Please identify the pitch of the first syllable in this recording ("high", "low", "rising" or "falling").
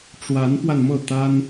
rising